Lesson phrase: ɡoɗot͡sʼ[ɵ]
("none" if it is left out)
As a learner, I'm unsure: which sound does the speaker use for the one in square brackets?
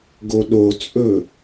ɵ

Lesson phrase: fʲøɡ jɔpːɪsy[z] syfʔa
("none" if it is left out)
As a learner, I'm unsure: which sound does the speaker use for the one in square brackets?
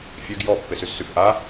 z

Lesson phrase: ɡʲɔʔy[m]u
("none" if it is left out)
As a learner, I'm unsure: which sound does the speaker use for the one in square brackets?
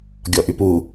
p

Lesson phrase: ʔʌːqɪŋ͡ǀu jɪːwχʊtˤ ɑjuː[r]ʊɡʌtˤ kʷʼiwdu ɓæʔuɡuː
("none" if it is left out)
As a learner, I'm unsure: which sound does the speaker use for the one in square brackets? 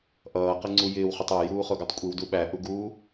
χ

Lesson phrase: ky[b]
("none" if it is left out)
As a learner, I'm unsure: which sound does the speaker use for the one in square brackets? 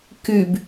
b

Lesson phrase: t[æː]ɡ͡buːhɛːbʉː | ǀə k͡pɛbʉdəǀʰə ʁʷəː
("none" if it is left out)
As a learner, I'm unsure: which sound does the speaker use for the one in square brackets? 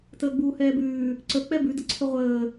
əː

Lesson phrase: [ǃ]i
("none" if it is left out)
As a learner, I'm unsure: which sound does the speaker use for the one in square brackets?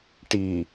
ʈ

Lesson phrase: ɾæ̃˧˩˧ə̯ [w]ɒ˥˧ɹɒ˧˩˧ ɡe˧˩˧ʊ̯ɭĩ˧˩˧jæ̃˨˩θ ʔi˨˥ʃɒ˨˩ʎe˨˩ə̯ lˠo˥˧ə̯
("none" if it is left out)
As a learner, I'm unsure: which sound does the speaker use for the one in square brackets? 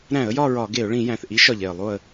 j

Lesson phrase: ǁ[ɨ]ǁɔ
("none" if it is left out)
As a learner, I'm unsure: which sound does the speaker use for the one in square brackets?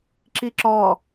i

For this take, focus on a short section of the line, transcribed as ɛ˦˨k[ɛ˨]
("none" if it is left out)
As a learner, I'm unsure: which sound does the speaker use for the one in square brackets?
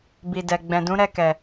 ɛ˨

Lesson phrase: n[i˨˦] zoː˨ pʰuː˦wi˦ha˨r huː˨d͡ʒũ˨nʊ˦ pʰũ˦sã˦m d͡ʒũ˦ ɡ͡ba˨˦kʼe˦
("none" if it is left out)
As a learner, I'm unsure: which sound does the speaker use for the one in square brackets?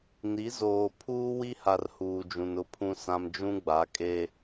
i˨˦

